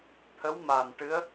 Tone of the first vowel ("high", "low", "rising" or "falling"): rising